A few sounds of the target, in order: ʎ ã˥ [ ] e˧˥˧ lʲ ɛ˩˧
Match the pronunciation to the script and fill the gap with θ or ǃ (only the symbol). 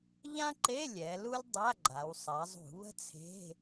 ǃ